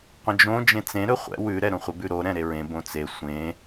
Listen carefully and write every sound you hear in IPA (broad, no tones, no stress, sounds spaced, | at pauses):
qʷ ə̃ d͡ʒ õ d͡ʒ ẽ t͡s ẽ ɾ ɵ χʷ ɛ̰ w ʉ ɾ ɛ ɾ õ χʷ ə b ʉ ɾ o ɾ ɛ̃ ɾ e ɹ ẽ b õ t͡s e sʷ ẽ